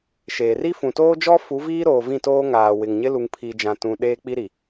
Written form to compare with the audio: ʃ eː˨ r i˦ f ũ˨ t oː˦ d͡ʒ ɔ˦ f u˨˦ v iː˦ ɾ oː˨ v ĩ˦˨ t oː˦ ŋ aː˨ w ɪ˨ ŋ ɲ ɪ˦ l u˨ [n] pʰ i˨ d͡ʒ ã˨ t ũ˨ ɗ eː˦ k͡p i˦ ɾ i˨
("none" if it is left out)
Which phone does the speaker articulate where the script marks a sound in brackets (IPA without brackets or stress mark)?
ŋ